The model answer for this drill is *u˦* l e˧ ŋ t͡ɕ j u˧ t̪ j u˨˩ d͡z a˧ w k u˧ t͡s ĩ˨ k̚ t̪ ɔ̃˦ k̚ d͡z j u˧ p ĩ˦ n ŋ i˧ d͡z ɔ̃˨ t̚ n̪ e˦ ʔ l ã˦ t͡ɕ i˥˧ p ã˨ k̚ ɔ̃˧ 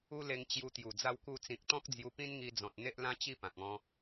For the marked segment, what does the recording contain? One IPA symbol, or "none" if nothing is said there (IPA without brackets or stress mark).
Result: u˦